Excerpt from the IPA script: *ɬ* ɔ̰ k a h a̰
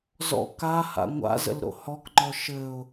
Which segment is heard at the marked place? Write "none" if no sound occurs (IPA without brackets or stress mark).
z